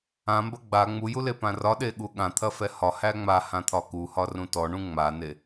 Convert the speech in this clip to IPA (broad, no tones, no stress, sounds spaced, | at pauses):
ã m b ɐ ɡ͡b a ŋ͡m u j u l e p ã r ɒ ɗ e ɠ u ɠ ã t̪ʰ ɐ f ɛ h ɒ h æ ŋ͡m a h ã t̪ʰ ɒ k u h ɒ r ũ t ɔ ɳ ũ ŋ͡m a n e